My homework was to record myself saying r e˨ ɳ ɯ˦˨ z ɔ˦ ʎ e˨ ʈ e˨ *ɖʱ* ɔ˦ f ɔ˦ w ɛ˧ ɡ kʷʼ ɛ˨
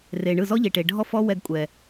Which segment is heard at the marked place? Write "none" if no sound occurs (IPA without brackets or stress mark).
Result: ɖʱ